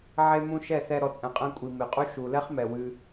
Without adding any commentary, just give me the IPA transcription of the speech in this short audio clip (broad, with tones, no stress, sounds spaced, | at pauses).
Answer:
ʕ e˧ m ũ˧ ʃ ɛ˦˨ s ɛ˧ ɾ ɔ˨ t͡sʼ ɛ̃˨ qʼ ɛ̃˧ kʷʼ i˨ m e˨ qʼ u˦ ʃ u˨ l ɛ˦ χ m ɛ˨ w ɨ˧